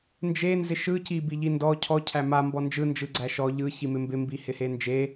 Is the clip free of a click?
no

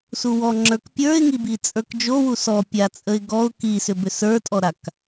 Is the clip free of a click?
no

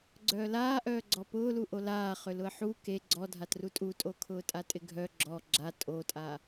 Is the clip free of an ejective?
no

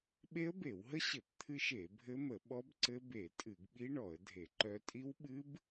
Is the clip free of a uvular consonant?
yes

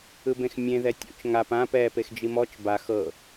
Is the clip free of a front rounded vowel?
yes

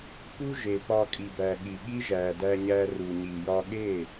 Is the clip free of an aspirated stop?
yes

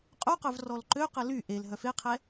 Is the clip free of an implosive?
yes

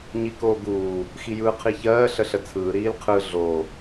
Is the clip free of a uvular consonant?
no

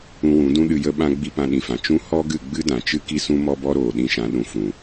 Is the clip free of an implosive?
no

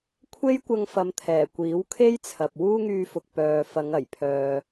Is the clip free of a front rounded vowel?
no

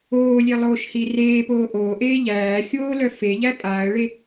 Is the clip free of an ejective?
no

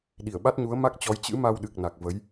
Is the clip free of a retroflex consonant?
yes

